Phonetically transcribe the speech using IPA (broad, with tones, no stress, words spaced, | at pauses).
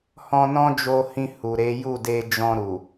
hɔ̃˧nɔ̃˦d͡ʒo˧hĩ˧ hu˨ɾe˨˦ju˦˨de˧ d͡ʒɔ̃˧ɾu˨